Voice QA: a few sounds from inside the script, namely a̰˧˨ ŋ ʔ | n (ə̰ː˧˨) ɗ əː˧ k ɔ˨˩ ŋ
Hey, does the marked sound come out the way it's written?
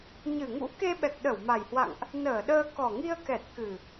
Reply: no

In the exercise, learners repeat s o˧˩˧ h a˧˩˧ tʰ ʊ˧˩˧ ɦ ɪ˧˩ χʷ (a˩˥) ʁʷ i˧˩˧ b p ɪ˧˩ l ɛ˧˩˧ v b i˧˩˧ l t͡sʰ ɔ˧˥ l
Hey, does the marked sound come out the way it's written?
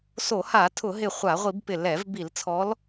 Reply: no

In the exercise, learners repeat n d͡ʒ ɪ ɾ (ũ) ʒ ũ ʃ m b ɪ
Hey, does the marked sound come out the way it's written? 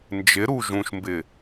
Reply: no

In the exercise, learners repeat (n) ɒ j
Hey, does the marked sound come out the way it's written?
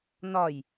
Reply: yes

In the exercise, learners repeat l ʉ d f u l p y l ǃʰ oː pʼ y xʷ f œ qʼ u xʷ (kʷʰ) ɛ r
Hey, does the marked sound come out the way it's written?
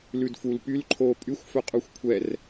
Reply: yes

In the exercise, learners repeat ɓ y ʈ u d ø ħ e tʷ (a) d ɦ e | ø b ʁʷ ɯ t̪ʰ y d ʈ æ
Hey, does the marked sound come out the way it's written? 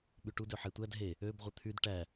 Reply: no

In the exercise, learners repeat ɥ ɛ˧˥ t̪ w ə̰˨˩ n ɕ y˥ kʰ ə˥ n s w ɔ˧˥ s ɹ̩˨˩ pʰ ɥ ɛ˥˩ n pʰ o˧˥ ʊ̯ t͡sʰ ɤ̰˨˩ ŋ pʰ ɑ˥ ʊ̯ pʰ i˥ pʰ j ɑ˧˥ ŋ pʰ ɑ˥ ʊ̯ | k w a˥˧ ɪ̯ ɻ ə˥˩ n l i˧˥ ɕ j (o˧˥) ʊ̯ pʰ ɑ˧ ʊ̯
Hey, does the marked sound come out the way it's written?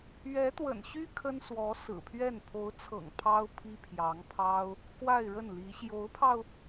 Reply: yes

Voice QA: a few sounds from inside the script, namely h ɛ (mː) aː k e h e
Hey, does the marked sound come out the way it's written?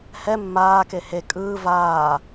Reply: yes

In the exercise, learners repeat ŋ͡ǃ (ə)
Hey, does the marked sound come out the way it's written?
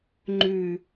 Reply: no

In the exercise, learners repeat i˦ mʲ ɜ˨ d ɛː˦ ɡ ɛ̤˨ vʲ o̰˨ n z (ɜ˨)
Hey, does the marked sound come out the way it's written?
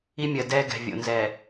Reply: no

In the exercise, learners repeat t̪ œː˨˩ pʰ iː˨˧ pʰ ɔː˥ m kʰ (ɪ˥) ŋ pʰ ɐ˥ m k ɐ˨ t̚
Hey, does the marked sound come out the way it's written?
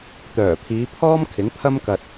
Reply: no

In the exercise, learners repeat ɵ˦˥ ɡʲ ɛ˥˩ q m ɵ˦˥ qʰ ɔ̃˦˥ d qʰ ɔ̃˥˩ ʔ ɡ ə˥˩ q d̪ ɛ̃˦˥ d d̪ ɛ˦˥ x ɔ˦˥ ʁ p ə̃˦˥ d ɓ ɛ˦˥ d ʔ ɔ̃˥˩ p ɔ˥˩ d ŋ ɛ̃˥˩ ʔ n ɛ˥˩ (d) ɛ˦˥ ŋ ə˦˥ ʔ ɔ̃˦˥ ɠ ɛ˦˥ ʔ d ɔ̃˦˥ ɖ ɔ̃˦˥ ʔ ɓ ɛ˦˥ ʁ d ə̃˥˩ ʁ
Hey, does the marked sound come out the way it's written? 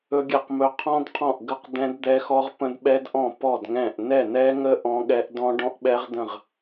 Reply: no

